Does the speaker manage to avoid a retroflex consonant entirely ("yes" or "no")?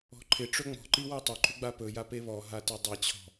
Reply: no